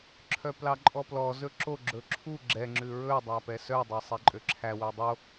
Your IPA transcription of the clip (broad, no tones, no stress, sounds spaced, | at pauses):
ǁʰ œ p l ɑ ǃʼ ɔ p l ɔ z ɵ ǁ o ɡ͡ǁ ɵ ǁʰ u ɡ͡ǁ ɛ ŋ͡ǁ ʉ ɹ ɵ dˤ æ p ɛ s œ dˤ ɛ sˤ ɛ ǃʼ ø ǁʰ æ w œ dˤ o